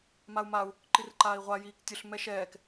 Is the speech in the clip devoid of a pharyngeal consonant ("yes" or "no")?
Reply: yes